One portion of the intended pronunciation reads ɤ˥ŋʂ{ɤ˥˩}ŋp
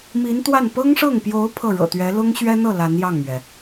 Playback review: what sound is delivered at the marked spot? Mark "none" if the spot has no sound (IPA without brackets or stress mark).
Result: ɤ˥˩